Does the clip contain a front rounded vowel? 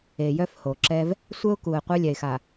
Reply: yes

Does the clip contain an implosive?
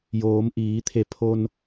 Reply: no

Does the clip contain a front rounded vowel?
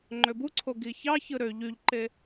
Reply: yes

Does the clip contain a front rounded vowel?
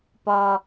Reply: no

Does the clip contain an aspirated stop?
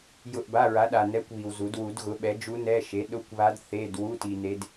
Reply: no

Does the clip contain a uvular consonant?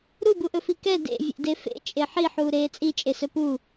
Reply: no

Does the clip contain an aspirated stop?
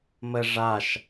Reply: no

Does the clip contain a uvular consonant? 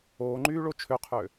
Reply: yes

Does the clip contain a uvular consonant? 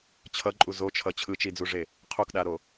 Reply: yes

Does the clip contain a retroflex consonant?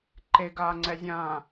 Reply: no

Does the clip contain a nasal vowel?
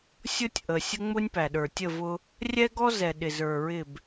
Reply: no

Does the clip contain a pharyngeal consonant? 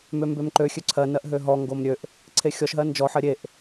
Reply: yes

